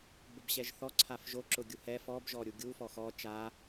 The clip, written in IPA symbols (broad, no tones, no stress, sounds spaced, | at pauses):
b ʊ b ɕ ɛ ʒ θ ɔ ǀʰ a f ʒ o ǁ ʊ ɡʲ u h ɛ f ɔ b ʒ ɔ ɾʲ u ɡʲ u f ɔ x ɔ t͡ʃ a